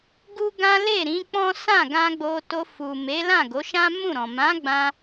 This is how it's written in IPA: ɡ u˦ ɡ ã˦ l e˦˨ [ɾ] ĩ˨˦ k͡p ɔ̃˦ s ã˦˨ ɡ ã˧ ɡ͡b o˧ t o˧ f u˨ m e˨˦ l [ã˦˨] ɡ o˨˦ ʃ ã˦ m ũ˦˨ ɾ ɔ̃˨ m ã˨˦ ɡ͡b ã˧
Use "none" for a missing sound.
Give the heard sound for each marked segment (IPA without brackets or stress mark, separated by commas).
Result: ɾ, ã˦˨